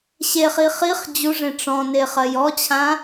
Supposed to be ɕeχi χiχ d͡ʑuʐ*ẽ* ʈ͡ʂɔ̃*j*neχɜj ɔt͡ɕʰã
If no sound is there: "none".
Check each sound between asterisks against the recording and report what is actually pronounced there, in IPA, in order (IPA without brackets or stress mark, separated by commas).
ẽ, none